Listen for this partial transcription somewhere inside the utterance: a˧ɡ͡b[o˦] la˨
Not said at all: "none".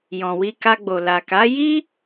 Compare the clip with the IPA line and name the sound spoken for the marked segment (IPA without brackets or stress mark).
o˨